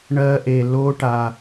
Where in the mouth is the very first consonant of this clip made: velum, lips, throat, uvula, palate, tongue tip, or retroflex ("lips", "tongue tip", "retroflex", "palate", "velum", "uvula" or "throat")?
retroflex